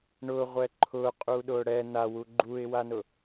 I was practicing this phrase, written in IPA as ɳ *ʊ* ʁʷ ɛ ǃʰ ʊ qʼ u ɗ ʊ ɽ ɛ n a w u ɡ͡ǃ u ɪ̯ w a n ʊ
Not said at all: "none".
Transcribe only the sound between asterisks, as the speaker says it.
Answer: ʊ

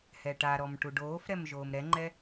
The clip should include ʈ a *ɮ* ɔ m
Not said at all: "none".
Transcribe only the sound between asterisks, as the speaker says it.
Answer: ɾ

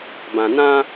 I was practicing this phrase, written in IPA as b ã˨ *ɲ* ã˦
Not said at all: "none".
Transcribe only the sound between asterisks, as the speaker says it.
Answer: n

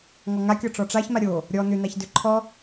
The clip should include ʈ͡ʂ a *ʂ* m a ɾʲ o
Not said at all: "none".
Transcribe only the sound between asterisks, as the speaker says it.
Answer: ç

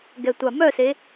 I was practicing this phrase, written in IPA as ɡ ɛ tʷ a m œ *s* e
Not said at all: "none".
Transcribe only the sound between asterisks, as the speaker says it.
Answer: s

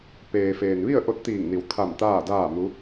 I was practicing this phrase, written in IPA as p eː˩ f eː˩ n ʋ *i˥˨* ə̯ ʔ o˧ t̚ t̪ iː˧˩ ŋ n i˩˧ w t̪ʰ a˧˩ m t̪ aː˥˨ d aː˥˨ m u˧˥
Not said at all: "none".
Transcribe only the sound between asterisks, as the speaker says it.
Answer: i˥˨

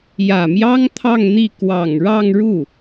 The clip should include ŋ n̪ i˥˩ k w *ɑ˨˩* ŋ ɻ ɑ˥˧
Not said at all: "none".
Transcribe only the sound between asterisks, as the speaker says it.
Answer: ɑ˨˩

